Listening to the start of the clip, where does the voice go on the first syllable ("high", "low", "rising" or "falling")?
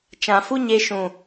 low